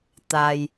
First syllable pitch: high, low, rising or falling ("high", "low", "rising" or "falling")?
low